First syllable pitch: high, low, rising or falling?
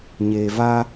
low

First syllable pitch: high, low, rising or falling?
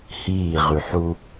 falling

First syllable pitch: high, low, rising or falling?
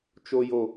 high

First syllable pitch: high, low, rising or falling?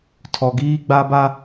low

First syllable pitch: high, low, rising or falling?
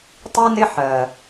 high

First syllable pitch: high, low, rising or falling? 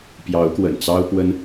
rising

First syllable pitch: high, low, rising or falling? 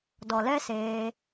low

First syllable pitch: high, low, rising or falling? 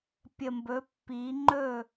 low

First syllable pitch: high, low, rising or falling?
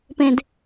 low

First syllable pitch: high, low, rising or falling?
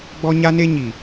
high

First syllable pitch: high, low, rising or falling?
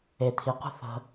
low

